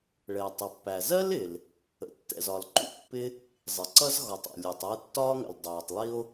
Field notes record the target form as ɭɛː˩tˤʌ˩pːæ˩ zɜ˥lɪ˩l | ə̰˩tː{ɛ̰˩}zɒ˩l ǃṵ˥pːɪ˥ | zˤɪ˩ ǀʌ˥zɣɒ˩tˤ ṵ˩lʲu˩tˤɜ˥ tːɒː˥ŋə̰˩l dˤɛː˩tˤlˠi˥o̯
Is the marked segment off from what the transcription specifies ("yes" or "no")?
no